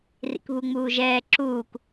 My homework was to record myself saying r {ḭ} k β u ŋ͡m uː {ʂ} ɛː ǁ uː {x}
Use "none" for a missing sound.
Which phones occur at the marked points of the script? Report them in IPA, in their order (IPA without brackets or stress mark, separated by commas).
ḭ, ʒ, k